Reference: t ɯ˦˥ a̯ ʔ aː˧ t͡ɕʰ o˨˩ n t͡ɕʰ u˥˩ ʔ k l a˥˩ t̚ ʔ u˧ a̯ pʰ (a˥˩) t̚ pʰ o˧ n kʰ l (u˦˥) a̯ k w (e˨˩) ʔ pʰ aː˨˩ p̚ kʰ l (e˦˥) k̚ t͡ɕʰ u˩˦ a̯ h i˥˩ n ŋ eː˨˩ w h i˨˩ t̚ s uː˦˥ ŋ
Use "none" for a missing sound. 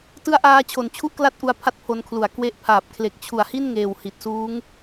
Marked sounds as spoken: a˥˩, u˩˦, e˦˥, e˨˩

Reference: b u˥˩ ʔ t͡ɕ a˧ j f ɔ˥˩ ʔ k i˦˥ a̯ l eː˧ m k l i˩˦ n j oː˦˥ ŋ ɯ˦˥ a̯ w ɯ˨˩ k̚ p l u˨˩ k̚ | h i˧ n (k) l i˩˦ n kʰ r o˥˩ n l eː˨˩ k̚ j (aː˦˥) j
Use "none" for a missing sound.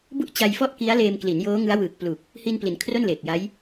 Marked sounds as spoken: p, a˦˥

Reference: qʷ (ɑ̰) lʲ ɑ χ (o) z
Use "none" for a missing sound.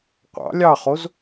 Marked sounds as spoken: ɑ̰, o

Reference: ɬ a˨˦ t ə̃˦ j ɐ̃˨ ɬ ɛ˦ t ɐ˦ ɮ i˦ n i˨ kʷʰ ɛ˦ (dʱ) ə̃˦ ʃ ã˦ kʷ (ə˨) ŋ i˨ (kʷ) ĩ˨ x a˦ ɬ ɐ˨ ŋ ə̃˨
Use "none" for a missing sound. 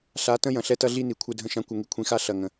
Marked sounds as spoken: dʱ, ə˨, kʷʰ

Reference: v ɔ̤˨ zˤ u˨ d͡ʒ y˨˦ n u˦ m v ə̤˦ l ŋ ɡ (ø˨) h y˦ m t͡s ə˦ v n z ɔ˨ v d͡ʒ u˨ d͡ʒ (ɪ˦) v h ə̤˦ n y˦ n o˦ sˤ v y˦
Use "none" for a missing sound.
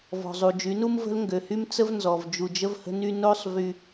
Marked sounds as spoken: ø˨, ə˦

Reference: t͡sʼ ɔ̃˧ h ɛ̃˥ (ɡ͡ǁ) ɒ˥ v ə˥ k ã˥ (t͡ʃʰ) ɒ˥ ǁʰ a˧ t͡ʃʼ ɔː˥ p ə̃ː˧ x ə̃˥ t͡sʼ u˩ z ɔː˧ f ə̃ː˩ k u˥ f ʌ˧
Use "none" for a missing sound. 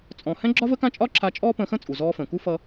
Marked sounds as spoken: ɡ͡ǁ, t͡ʃʼ

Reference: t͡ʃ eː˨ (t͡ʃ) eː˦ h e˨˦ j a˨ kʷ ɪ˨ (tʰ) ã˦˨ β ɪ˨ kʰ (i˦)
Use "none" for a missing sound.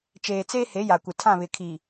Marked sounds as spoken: t͡s, tʰ, i˨

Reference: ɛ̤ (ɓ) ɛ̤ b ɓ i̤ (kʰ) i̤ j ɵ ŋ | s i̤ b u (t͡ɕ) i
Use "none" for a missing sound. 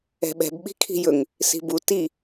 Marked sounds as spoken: ɓ, kʰ, t

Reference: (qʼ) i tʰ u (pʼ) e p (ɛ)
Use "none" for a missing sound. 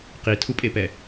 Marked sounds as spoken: q, pʼ, ɛ

